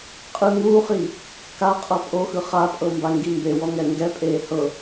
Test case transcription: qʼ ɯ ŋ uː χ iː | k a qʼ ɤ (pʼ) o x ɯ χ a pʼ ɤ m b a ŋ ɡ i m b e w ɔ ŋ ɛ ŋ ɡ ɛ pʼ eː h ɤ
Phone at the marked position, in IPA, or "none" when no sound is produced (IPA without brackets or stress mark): pʼ